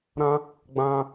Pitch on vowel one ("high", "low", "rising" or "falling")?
high